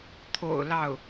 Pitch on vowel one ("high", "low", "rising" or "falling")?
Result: low